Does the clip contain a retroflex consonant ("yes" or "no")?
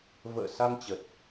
no